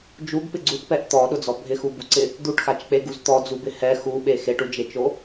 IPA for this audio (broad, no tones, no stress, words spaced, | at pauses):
d͡ʒuɡpɪ ɡ͡ǀuʈpɛʔ t̪ɔɗʊd͡zɔ bʱɪxubuǀɪ | d̪uʈxat͡ʃk͡peɡuz t̪ɔd͡zubɪ hɛ xuɓe xeʈud͡ʒet͡ʃo